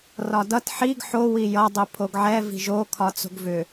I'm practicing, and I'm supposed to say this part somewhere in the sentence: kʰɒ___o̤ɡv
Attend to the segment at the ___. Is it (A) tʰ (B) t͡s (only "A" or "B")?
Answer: B